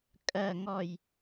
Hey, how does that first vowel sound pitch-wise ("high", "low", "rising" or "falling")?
falling